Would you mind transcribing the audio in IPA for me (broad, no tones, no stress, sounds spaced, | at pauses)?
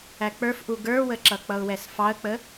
æ k͡p ə˞ f ʔ u ɡ ə˞ w ə ǁ ʌ k͡p ʌ ʊ̯ w ɛ s f ɑ ə̯ k͡p ə